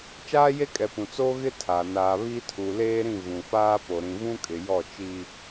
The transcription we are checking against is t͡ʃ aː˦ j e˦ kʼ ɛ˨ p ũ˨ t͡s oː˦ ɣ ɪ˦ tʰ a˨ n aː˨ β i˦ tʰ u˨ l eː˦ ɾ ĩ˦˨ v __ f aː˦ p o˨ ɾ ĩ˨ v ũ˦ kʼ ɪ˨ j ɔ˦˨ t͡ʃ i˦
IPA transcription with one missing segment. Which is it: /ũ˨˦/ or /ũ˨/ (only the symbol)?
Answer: ũ˨